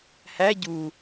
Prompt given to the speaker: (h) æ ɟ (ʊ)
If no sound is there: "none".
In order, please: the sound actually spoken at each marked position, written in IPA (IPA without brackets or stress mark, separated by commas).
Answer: h, u